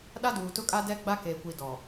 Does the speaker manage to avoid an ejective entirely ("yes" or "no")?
no